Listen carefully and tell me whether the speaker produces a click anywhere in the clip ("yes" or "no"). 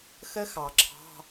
yes